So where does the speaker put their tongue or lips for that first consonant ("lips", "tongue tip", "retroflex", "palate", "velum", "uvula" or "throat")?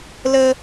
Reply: tongue tip